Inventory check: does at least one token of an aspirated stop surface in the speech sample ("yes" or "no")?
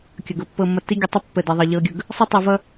no